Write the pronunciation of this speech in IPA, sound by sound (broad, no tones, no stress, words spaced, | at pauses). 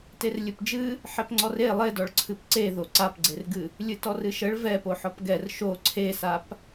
terlʲɨpd͡ʒɨ | ħɛpŋ͡ǀɔre lˠedɔɭ ǀʰɨpǀe ðoǀapɡ͡ǀerɡɨ | lʲɨtɔrɨʃəɭ vɛ poħɔpɡɛr ʃo ǀʰesap